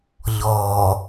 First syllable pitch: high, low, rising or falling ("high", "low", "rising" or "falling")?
low